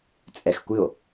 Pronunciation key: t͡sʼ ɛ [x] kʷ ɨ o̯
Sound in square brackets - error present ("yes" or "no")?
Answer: no